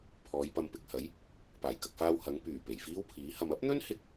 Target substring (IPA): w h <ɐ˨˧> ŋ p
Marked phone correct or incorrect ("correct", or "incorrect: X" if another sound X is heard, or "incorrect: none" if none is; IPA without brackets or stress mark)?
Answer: correct